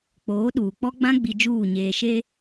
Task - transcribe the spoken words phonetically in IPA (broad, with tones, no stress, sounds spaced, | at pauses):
k͡p oː˨˦ ɗ uː˨ k͡p ɔ˦ ɡ͡b ã˦ ɡ͡b i˨ d͡ʒ uː˦˨ ɲ eː˨ ʃ e˦